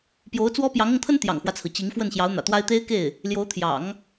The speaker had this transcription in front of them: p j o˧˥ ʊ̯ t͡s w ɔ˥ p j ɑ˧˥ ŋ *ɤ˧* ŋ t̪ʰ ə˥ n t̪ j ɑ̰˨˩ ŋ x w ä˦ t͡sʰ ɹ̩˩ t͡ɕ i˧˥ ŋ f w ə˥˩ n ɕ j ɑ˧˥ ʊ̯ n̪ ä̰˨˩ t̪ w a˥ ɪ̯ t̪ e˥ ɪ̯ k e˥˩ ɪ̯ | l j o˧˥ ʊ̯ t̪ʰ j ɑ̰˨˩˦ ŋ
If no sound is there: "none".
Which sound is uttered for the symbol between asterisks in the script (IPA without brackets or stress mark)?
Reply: ɤ˧